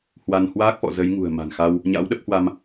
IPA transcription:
hwa˧n hwaː˦˥k̚fɔ̰˧˨ zə˨˦jŋṳ˨˩ə̯ma̤˨˩nxa˧w | ɲa̰˧˥wɗə˦˥p̚hwa˧m

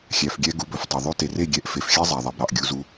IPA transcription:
xʲæ˨fɡʲɛ˧ ɡu˨˦bɵ˨ftˤœ˨ ðˤʉ˧ te˨re˦˨ ɡʲɛ˧ʔ fe˨fxʲæ˦ zˤæ˨ðˤɛ˨bɾɑ˨ʔ ɡʲu˧zu˧

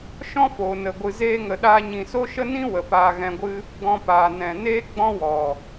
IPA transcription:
ʃɔ̃˦foː˨nə˨ ɡʷɨ˨zeː˧ŋə˨ ɗaː˧ɲĩ˨so˦ʃə˦ nĩ˦ wə˨paː˧ɣɛ̃˧ɡʷɨ˦ | ɡɔ̃˧paː˨ nɛ̃˨ neː˦ɡ͡bɔ̃˦wɔ˨

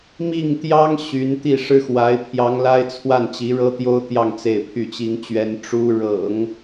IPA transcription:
mi˥˩ŋt̪jɑ˥ŋ ɕy˧˥n t̪i˥˩ʂɻ̩˥xwa˧˥ɪ̯ pʰjɑ˧˥ŋla˥ɪ̯t͡sʰwa˥˩n t͡ɕi˧˥ɻɤ˥t̪jo˥ʊ̯t̪jɑ˥˧ŋ t͡se˥˧ɪ̯pʰy˥˩t͡ɕi˥ŋt͡ɕɥɛ˥n ʈ͡ʂu˥ ɻɤ̰˨˩˦ŋ

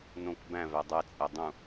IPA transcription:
nõk bæ̃ vædˤæ t͡sʼædˤũ

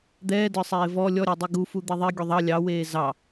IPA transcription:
d̪ɛːdə˞sˤeː vɔ lʲɔɾʲodˤi ɡufu d̪iðˤi ɡʲuðˤɑ lʲɑweː zɑ

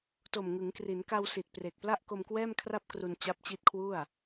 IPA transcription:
to˨˩mŋɯ˩˦ŋkri˩˦n ka˧wsi˨˩t̚ pre˨˩k̚pla˥˩ʔ ko˧mkwɛː˥˩mkʰra˥˩p̚ kru˧nt͡ɕa˦˥p̚t͡ɕi˦˥t̚kʰwu˥˩a̯

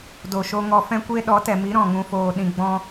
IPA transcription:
do˨ʃo˧ ŋɔ˧fɛ̃˦kʷe˦ ɗɔ˨˦tɛ˨mi˨˦ ɾɔ̃˦˨ŋũ˧foː˧ ɗĩ˨ɡ͡bɔ̃˧

